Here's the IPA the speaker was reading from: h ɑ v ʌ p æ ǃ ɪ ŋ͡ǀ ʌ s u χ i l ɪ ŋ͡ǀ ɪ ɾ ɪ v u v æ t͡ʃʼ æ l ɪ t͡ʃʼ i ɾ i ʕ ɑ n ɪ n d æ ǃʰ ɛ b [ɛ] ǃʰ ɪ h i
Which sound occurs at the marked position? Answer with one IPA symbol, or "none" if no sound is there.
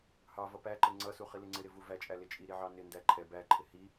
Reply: æ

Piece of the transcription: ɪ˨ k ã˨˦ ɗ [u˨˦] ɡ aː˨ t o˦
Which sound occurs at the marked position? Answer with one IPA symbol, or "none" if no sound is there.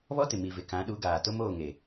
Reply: u˨˦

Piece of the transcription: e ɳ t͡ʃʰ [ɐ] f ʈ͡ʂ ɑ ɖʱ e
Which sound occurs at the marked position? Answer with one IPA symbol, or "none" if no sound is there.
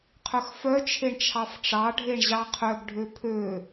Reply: ɑ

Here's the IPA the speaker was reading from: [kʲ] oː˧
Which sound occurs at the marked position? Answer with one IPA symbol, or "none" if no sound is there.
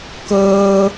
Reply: k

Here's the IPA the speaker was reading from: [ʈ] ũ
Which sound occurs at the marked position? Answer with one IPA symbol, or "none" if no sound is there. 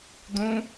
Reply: d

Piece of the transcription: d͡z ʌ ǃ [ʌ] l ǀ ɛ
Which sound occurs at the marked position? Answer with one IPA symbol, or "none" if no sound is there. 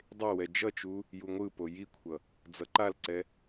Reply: a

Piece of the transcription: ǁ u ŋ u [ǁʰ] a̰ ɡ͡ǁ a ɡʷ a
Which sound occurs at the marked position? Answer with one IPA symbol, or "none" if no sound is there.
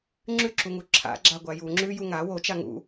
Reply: ǁʰ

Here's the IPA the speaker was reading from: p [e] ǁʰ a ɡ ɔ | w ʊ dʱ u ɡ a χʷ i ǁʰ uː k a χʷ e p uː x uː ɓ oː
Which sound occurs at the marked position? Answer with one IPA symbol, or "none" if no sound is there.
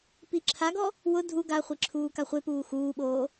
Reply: i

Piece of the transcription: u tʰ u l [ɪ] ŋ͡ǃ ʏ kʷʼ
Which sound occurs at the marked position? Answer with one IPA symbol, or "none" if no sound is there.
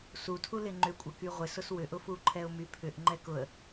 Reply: ɪ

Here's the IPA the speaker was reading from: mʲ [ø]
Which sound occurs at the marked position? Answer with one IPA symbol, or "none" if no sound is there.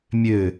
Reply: ø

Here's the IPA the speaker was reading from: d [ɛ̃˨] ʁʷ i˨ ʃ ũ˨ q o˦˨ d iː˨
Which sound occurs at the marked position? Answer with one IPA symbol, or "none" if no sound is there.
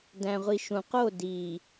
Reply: æ̃˨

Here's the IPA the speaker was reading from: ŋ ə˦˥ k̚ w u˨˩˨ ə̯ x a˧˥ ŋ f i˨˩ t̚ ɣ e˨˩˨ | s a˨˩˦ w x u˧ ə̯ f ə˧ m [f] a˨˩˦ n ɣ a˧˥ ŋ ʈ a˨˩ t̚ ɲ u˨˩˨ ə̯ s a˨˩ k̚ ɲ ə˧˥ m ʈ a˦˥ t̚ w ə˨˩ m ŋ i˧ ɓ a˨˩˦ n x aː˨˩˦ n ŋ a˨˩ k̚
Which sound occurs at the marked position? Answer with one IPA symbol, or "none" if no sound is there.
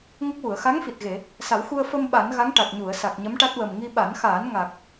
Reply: ɓ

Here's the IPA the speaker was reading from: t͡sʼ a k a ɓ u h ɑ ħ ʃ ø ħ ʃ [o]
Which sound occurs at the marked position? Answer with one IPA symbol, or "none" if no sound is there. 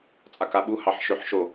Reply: o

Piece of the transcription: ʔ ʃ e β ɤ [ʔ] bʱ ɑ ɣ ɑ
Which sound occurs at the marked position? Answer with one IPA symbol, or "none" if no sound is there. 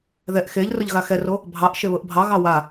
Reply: ʔ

